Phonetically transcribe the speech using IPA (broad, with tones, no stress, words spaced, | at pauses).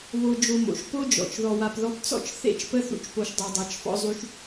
βo˧d͡ʒo˧mo̰˩ʃ po˥d͡ʒɔ̰˩t͡ʃ ðɔ˧wa˧p ðɔ˥pt͡sɔ̰˥t͡ʃ θḛ˥t͡ʃ pə˥θṵ˧t͡ʃpo˧ʃ dˤo˧dˤa˧t͡ʃfɔ̰˥zˤy˥ʃ